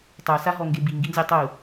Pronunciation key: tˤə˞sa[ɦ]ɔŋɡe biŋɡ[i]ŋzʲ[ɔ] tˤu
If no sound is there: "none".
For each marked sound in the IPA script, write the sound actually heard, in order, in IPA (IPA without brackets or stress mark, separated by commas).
ɦ, i, ɔ